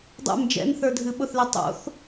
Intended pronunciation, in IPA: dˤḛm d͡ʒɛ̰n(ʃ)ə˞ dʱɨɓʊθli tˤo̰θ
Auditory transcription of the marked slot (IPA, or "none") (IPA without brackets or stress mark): θ